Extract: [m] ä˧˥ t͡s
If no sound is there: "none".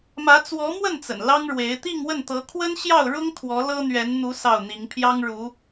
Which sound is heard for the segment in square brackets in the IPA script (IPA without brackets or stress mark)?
m